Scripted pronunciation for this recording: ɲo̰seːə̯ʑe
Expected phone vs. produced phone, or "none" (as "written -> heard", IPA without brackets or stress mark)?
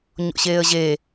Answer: s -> ɕ